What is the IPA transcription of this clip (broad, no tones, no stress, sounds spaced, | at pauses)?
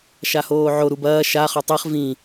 ʃ a h oː ʕ o ɾ u b ɐː ʃ a χ ɵ tˤ i χ v ĩ